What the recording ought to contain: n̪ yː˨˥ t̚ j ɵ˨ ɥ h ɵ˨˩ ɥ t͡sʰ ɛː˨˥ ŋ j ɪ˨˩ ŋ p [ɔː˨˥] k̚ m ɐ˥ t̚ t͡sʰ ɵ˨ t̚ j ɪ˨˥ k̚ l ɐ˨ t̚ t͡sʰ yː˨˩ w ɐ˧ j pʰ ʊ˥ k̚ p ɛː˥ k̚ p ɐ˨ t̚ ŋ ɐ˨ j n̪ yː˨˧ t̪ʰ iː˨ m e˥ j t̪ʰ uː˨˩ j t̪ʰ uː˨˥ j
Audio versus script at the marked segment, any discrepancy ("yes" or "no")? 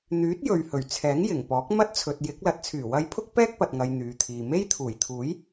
no